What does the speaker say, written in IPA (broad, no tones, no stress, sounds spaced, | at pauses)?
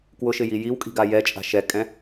k w ʊ ʃ ɪ j i j i w kʼ i̤ ɡ a j ɛ t͡ʃʼ a̤ ʃ ɛ kʼ ɛ̃